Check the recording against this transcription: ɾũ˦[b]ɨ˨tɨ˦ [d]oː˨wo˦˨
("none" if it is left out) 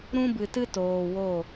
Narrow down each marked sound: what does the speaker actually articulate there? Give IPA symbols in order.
b, t

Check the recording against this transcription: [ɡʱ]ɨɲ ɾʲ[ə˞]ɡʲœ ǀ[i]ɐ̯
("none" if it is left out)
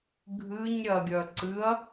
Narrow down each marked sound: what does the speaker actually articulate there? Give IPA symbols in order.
ɡʱ, ɐ, ɨ

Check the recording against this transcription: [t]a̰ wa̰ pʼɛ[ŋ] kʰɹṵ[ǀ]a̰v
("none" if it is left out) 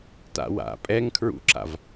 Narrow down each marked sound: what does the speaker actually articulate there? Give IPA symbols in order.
t, ŋ, ǁ

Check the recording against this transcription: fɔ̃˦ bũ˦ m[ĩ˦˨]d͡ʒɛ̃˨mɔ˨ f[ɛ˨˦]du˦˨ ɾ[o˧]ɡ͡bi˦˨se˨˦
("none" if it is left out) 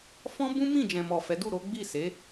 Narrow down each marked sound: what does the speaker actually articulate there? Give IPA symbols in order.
ĩ˦˨, ɛ˨˦, o˨˦

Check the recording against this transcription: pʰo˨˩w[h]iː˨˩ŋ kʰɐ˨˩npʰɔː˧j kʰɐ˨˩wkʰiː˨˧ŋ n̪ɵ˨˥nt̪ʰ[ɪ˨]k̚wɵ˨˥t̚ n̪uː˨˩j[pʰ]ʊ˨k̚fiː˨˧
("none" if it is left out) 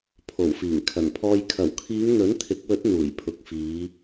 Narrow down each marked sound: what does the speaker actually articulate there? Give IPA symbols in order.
f, ɪ˨˥, pʰ

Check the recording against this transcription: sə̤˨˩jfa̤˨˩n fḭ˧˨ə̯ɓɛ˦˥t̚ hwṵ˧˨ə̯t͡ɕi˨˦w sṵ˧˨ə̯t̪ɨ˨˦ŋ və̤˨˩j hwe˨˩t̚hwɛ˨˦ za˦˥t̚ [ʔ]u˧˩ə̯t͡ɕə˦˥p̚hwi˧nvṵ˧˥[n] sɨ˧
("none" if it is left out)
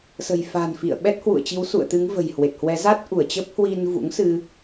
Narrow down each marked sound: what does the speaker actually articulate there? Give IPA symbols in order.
ʔ, ŋ

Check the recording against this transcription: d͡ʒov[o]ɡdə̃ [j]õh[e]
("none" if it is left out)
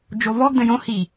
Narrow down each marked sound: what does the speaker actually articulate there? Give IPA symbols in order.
ɔ, j, i

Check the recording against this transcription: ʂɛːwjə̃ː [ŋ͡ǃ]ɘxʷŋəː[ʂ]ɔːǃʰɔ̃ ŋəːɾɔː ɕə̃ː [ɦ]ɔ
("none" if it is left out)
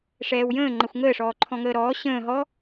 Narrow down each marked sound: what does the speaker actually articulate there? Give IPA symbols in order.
ŋ͡ǃ, ʂ, ɦ

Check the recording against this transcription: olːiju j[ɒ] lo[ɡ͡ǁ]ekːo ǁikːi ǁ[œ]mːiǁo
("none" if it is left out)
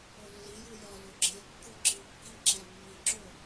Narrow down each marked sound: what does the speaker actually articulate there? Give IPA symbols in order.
ɒ, ɡ͡ǁ, æ

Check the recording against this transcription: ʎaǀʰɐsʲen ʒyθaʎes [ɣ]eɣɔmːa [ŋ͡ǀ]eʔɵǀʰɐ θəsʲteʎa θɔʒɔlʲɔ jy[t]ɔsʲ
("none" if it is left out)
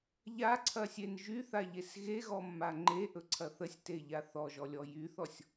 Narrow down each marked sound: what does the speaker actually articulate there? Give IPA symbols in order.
ɣ, ŋ͡ǃ, θ

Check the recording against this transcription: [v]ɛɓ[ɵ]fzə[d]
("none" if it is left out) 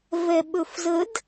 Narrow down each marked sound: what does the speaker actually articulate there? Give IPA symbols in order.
v, ɵ, d

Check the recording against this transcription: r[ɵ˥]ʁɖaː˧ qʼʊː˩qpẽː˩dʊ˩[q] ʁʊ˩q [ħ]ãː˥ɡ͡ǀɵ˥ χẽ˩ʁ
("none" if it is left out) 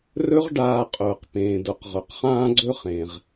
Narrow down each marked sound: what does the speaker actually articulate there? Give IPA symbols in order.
ɵ˥, q, χ

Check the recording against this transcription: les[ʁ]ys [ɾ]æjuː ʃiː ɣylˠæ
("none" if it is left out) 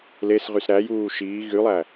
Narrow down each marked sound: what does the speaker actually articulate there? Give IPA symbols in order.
ʁ, ɾ

